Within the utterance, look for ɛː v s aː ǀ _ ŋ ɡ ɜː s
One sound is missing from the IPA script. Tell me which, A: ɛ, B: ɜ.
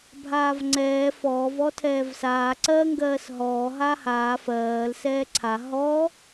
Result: B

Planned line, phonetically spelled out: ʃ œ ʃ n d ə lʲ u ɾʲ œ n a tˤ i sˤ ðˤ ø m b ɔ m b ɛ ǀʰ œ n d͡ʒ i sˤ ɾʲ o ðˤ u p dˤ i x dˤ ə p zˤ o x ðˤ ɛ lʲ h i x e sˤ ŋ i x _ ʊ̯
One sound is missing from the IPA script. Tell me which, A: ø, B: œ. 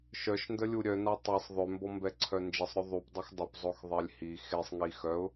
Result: B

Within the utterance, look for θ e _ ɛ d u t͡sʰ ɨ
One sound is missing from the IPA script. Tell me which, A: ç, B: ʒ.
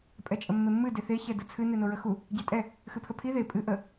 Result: A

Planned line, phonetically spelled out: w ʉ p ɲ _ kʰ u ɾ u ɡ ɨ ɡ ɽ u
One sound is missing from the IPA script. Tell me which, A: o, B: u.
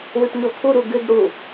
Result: A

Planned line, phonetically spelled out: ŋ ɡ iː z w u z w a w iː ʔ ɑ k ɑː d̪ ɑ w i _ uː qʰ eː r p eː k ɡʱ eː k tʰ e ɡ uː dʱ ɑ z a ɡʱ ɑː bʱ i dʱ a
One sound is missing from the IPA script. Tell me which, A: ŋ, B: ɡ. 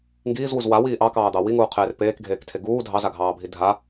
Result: A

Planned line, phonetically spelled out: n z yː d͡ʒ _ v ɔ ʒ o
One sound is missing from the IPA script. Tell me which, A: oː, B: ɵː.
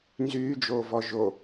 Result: A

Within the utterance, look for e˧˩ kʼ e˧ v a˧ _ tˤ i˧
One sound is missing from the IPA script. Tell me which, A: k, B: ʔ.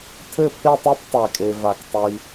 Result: A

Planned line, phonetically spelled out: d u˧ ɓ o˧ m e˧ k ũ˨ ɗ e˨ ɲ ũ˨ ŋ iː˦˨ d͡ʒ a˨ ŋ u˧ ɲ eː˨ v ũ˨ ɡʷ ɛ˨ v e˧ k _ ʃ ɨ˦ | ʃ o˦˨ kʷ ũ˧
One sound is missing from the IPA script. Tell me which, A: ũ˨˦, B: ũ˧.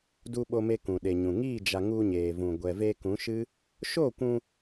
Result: A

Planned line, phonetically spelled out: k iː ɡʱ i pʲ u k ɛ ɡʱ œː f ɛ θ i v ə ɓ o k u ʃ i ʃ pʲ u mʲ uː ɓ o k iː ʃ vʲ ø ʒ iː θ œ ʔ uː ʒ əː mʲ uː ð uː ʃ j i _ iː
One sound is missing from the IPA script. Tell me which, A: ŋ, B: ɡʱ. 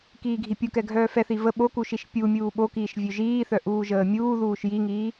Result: A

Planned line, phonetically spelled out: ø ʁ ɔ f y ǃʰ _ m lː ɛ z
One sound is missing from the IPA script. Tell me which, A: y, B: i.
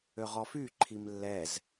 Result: B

